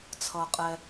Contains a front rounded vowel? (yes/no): no